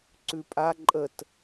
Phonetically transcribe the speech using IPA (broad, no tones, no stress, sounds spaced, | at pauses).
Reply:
ǀ ʉ pʼ a ǃʼ ə t